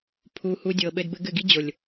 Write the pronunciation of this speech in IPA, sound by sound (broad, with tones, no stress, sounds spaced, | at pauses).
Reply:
pʰ u˧ h u˧ dʲ ɤ˨ ɓ ɘ˧ d b ɘ˧ ɡ ɘ˦˨ ɡ i˦ d͡ʑ o˨ lʲ